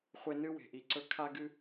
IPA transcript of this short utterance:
χʷ e˦ n ɨ˥ w e̤˨ ʔ i˨ ǀ ɵ˦ kʰ a˥ ɡ ɨ˥

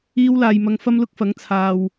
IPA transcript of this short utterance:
iː˧ w l aː˨ j m ɐ˨˧ ŋ f ɐ˥ m l ʊ˥ k̚ f ɐ˨˥ ŋ t͡sʰ aː˨ w

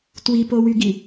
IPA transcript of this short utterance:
t w i p o w y ɡ i

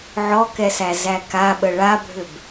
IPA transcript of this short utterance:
ʕ ɔ k ɛ s æ z æ k a ɓ ə ɭ a bʱ ʏ b

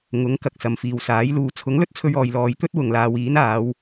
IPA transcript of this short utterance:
ŋ ʊ˨˥ ŋ k ɐ˨ k̚ s ɐ˨ m f iː˨ w s aː˨˥ j l uː˨ t͡sʰ ʊ˨˥ ŋ l ɵ˥ t̚ t͡sʰ ɵ˧ ɥ ɔː˨ j l ɔː˨˧ j t̪ ɵ˥ t̚ w ʊ˨ ŋ l aː˨˧ w iː˨˥ n aː˨˧ w

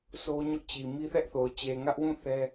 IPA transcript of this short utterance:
sʰ o˦ ɲ ʊ˦ ʔ t͡ɕ i˨ m i˦ θ ɛ˦ ʔ θ o˨ ʊ̯ t͡ɕ e˨ ŋ ä˦ ʔ w ũ˦˨ θ ɛ˦

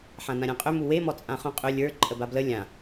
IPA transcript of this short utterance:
ħ ã n ã ɾʲ ã qʼ ʏ m u w e m ɔ t͡sʼ ã χ ũ qʼ ʏ lʲ ə˞ ǃʼ ə b a b l ə lʲ ã

